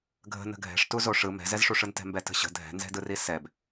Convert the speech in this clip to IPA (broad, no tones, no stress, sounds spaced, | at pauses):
ɡʱ ə̤ n ə̤ ɡʱ ɛ̤ ʂ t u z o ʂ ɯ m ɛ̤ z ɛ z ʂ u ʂ ɯ n t ɛ̤ m b ɛ t ə̤ ɕ ə̤ dʱ ɛ̤ n z ɛ̤ d ɯ r i s ɛ b